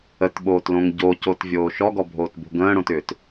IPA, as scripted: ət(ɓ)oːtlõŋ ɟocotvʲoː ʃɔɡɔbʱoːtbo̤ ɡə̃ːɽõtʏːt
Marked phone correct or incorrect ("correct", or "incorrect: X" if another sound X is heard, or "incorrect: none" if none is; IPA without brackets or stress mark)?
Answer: correct